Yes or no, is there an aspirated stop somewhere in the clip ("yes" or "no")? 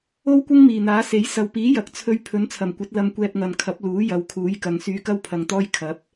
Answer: yes